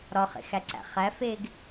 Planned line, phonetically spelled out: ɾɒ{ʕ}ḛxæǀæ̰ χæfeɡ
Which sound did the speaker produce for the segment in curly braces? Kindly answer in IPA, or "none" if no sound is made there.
χ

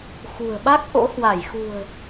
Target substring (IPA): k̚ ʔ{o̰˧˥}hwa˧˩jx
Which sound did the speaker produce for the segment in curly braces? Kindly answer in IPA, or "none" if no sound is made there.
o̰˧˥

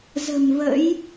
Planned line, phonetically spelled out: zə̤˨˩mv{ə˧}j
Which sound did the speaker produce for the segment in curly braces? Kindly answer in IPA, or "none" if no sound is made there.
ə̰˧˥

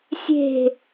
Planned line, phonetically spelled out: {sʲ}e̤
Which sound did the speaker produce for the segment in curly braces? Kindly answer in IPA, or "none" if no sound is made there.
sʲ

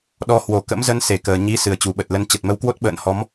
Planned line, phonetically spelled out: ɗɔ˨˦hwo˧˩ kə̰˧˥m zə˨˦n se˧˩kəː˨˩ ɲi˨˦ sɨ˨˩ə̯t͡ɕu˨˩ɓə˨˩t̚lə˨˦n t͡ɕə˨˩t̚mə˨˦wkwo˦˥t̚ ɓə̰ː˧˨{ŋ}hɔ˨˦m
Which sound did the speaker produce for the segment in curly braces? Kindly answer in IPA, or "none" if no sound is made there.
n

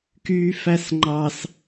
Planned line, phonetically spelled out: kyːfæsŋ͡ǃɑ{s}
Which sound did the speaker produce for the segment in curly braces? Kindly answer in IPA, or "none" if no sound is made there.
s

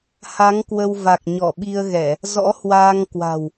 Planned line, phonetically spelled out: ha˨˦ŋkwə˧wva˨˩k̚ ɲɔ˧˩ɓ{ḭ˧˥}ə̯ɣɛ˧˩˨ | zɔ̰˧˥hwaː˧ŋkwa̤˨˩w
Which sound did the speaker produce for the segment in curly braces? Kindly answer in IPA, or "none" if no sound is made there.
i˧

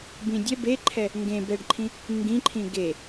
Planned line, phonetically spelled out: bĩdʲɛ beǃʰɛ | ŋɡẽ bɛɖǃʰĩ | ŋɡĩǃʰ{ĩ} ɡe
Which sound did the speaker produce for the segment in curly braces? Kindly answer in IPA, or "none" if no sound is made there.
ĩ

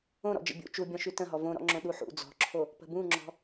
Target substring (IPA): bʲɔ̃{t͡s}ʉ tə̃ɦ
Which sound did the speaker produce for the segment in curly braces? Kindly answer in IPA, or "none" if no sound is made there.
ʃ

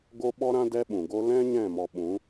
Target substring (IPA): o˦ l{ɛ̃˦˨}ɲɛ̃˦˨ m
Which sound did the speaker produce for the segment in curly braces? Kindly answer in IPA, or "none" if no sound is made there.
ɛ̃˦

